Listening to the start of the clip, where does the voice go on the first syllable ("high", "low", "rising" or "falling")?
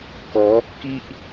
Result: rising